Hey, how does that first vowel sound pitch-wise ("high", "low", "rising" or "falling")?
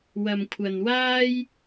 low